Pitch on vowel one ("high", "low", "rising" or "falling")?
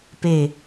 falling